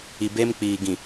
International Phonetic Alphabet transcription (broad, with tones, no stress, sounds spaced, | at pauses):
i˨ b e˦ m k͡p iː˨ ɡ ĩ˨